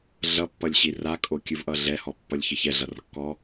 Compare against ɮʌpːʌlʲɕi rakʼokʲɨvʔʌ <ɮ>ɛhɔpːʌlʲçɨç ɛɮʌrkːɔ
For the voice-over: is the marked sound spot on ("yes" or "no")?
yes